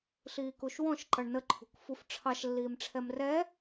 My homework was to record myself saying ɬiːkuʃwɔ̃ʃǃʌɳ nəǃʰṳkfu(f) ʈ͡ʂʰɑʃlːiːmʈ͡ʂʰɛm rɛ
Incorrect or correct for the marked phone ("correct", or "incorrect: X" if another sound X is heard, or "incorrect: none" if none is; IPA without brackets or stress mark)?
correct